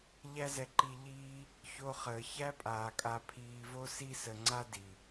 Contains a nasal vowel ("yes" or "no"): no